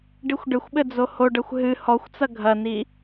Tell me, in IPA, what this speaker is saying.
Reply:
ɖixʷɖɘxʷɓɘ d͡zohoɖɐxʷ ɦɨ hɔxʷt͡sɐ ɡʱɐni

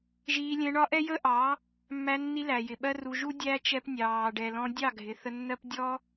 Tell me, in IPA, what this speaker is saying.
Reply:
ʒiː˧lʲɛ̃˧ɳɒ˦ʔɛ˦ jə˦ʔɑ˨˦ | mːæ˧nːi˧læ˨jɪ˨ ɓɜ˦ru˧ ʒu˦ dʲæ˦t͡ʃɛ˧p nʲɑː˨ ɖɛ˨lɔ̃˧dʲɑ˦˨ ɡʱɪ˨θə˧nːɜ˦p dʲɔ˦

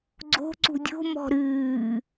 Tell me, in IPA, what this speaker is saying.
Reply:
ɡ͡ǀo̤ ǀṳdʲo̤ mɔ̤ɾɨː

